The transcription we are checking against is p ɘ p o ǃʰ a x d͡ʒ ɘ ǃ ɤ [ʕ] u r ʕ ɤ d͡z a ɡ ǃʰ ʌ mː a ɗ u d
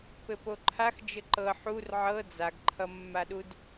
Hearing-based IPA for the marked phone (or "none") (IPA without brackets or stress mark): ħ